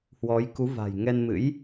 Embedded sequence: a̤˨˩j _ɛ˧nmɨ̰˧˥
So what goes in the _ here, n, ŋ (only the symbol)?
ŋ